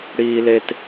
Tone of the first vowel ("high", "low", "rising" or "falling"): high